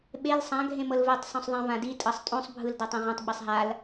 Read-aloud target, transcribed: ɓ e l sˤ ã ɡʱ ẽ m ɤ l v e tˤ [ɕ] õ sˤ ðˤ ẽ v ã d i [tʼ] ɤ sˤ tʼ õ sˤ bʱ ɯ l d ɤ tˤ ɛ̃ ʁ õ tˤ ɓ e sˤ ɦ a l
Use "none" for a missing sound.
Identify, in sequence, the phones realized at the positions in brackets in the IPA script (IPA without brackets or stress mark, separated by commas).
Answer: sˤ, tʼ